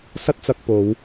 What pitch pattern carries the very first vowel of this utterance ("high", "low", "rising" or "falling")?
high